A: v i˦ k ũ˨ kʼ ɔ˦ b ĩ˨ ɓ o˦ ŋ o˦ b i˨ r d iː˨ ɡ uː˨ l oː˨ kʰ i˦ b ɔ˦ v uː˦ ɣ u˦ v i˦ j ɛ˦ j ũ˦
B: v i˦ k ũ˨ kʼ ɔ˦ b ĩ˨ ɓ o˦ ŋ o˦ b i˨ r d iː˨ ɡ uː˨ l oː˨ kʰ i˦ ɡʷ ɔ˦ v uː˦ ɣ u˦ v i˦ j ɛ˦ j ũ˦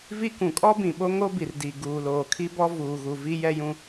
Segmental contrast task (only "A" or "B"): A